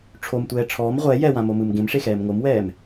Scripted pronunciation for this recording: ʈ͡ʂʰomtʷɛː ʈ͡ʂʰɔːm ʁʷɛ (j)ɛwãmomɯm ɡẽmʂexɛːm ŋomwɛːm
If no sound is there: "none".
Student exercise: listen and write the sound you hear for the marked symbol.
j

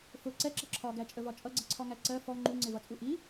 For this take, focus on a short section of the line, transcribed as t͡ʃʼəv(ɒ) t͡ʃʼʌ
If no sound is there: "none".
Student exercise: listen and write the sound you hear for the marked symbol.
ɒ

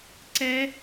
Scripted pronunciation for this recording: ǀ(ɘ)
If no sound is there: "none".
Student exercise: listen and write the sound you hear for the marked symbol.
ɛ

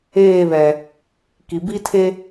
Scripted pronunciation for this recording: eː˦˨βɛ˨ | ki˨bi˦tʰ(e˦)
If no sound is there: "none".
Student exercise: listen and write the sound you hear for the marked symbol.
e˦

